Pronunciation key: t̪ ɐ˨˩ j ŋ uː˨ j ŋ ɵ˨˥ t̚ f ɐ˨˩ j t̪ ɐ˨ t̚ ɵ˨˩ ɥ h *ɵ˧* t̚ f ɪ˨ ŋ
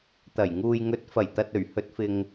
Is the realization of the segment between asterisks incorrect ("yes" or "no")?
yes